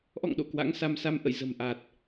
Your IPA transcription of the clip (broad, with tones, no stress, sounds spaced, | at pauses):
ʔ ɔ̰˧˨ ŋ ɗ o̰˧˨ k w a̰˧˥ ŋ s a˧ m s a˧ m ʔ ə̰˧˨ j z ə̤˨˩ m ʔ a˨˩ t̚